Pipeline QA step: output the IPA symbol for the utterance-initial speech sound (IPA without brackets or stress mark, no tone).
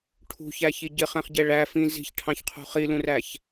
ʈʰ